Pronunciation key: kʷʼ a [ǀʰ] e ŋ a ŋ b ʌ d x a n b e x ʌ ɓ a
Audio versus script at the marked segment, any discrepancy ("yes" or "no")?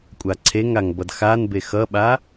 no